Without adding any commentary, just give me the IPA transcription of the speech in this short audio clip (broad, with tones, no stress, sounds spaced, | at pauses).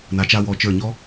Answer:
n a˩˧ t͡ʃ a˧ w ɔ˩˧ t͡ʃ ə˞˧˩ ɲ ɔ˥